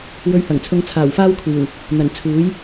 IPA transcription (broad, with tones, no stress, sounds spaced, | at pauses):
w ɵ˧ ɥ h ɐ˨˩ ŋ t͡sʰ ʊ˧ ŋ t͡sʰ aː˨˩ w f aː˥ w kʷʰ iː˨˩ w | n̪ ɐ˨˩ n t͡sʰ uː˨˥ j